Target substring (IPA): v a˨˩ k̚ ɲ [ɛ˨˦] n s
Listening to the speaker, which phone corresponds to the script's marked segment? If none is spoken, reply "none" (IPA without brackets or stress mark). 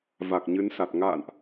ɨ˨˦